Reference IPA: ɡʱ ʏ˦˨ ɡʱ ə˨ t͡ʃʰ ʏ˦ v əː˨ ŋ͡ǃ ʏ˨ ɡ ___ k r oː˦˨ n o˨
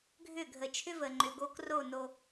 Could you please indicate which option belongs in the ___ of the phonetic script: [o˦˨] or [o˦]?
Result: o˦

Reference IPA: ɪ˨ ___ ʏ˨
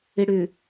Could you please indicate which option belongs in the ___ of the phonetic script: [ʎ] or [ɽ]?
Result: ɽ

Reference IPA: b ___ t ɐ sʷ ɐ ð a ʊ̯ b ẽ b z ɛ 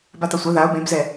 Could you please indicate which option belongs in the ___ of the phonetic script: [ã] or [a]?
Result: a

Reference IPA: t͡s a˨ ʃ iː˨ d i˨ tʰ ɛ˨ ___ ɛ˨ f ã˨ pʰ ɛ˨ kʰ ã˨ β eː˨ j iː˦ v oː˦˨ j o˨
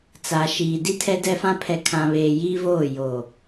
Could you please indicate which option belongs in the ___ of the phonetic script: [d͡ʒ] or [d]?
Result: d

